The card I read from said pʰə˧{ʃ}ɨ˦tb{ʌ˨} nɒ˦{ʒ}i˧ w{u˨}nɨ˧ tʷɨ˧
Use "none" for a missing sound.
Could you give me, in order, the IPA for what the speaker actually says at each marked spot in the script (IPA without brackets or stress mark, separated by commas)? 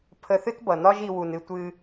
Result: θ, ʌ˨, ʒ, u˨